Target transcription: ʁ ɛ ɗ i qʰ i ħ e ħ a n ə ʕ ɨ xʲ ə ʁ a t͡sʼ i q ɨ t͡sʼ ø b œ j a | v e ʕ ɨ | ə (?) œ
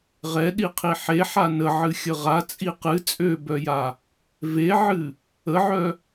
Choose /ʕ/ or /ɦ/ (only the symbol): ʕ